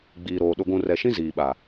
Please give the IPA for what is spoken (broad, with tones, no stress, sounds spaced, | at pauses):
ɡ͡b iː˨ ɾ oː˨ ɗ ʊ˨ ɡʷ ũ˨ r ɛ˨ ʃ ĩ˦ z iː˨ ɓ a˨